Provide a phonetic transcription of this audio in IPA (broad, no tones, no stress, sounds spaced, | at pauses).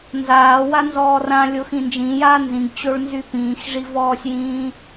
n z aː w a n z ɔː r ã lʲ o x ĩ n d͡ʒ ĩ j aː n z ĩ ɡ t͡ɕ o ɭ n z y p ĩː x ʐ i v ɔː sʲ j ĩː